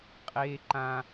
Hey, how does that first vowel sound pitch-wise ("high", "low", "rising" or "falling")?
high